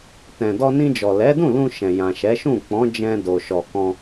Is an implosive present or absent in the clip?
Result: absent